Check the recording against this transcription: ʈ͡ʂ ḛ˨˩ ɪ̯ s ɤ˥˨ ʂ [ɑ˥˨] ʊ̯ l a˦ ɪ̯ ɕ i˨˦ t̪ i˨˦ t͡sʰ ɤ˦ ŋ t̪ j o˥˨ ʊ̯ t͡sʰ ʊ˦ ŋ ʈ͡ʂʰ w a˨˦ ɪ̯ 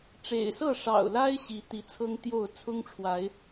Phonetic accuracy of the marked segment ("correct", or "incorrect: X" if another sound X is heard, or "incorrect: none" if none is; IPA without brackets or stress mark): incorrect: ɑ̰˨˩